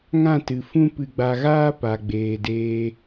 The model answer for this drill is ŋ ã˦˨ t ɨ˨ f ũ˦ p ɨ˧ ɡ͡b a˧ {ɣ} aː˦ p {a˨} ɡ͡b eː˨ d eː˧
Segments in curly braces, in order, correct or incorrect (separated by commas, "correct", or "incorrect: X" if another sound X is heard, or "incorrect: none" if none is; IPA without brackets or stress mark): correct, correct